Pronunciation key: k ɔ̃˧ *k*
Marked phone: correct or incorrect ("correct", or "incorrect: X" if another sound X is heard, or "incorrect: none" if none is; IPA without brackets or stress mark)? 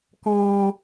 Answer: incorrect: none